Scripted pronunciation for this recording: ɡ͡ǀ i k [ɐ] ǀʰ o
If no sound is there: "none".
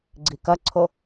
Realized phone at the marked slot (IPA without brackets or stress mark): ɐ